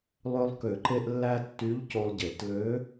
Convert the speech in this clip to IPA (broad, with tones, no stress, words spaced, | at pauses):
lˠø˧lˠ kø˨˩˦ǃe˧ʔlːæ˧ tːy˧˥ʎco˧lˠɟe˨˩˦tlø˧˥